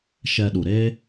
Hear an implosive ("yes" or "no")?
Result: yes